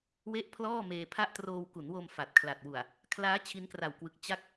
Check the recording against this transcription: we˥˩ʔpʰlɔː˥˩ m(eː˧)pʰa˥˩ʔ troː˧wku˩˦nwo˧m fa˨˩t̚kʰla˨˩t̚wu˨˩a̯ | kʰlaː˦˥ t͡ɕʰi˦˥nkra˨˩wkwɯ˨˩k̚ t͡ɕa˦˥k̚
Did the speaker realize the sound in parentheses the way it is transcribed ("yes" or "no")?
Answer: yes